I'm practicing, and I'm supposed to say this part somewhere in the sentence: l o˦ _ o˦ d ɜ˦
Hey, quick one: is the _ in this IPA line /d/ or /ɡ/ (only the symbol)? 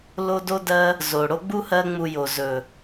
d